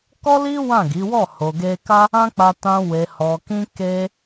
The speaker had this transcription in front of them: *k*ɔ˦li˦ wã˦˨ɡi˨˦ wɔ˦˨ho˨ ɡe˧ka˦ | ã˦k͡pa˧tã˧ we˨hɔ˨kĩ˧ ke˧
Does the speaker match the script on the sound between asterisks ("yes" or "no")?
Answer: yes